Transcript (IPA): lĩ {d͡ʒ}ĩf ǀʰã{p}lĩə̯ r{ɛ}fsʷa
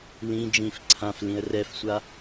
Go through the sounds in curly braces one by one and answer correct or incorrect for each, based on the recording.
correct, incorrect: f, correct

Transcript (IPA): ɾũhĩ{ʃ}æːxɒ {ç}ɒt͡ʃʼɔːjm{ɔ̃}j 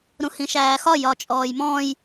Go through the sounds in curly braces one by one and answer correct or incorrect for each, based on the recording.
correct, incorrect: j, correct

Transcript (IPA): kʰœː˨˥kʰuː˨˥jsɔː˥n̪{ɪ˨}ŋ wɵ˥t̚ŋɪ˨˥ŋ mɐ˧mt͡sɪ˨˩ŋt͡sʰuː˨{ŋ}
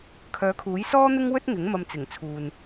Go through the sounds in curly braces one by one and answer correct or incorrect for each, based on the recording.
incorrect: ɪ˥, incorrect: n

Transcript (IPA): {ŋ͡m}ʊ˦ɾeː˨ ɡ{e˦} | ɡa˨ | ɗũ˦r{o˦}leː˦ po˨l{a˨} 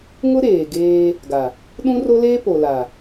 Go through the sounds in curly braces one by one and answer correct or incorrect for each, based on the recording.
incorrect: ŋ, incorrect: eː˦, correct, correct

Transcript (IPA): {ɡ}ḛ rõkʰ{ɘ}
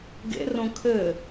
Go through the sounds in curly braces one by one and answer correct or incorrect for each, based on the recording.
correct, correct

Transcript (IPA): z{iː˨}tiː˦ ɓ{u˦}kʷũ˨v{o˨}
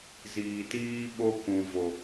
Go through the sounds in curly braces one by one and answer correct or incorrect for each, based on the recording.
correct, incorrect: o˦, correct

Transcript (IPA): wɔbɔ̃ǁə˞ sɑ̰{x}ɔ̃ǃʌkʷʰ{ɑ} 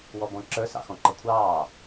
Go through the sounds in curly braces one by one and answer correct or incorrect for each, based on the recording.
correct, incorrect: ɑː

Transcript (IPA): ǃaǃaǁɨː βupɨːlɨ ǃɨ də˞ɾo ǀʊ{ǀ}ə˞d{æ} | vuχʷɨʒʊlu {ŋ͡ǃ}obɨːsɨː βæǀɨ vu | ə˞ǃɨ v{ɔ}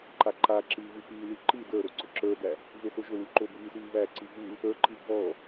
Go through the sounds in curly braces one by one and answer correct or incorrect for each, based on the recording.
incorrect: ǁ, correct, incorrect: ǃ, correct

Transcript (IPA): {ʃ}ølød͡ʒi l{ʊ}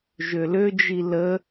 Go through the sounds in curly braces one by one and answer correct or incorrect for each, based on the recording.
incorrect: ʒ, incorrect: ə

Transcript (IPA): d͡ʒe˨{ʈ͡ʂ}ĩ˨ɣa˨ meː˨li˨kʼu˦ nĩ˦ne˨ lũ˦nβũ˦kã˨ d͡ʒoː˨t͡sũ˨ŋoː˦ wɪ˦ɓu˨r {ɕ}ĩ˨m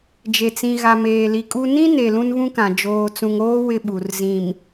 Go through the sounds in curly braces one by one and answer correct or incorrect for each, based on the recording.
incorrect: t͡s, incorrect: z

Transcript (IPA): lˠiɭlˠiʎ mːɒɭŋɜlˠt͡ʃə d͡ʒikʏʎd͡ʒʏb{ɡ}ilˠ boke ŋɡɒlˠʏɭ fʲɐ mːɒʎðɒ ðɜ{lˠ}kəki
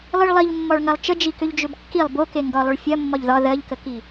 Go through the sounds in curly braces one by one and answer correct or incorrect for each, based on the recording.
incorrect: kː, incorrect: ʎ

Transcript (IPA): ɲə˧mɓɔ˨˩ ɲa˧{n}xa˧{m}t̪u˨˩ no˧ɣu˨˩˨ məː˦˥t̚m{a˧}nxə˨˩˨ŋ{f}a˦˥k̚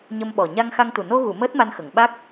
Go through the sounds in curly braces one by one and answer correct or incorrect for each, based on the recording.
incorrect: ŋ, incorrect: ŋ, correct, incorrect: ɓ

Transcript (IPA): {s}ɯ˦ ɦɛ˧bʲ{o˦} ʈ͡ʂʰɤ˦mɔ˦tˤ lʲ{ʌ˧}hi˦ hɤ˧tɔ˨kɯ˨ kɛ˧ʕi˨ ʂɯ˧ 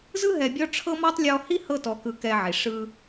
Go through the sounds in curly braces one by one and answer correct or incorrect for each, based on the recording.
incorrect: z, incorrect: ɔ˦, incorrect: ɔ˧

